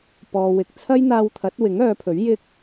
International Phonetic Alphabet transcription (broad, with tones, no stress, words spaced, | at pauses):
pɔː˨ wɪ˨k̚t͡sʰɐ˥jn̪aː˧wt̪ʰɐ˨˥t̚ wɪ˨˥ŋœː˨˧pʰɵ˨˥ɥ jɪ˥k̚